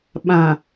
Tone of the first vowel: low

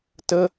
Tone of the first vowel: high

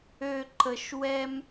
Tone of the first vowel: low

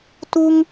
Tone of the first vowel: high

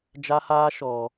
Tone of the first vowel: high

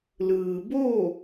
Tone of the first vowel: low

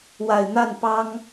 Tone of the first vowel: low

